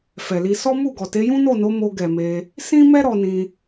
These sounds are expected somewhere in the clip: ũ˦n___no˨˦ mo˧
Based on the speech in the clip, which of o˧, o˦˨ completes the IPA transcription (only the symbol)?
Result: o˦˨